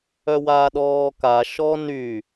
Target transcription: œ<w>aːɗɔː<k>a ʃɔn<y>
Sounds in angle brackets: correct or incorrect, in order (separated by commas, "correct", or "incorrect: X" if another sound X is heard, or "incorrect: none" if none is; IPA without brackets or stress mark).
correct, correct, correct